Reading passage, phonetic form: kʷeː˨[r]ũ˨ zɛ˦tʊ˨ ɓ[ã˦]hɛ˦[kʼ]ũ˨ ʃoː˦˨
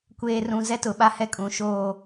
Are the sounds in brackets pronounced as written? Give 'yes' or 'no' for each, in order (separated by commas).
yes, no, yes